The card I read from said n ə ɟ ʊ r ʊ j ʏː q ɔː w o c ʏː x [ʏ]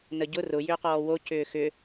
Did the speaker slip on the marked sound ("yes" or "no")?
no